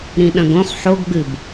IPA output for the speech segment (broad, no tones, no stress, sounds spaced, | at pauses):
ɾ ĩ ɗ ɐ̃ ɡ õ χ ħ o ɡ ɡ͡b ɨ b